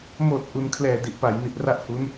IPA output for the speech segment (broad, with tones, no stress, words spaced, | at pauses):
moː˨˩t̚ ʔu˩˦nkʰlɛː˨˩ di˨˩ʔpa˩˦j ni˨˩t̚ra˥˩ʔhu˦˥n